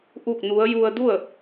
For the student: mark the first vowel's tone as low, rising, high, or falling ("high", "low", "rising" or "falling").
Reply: falling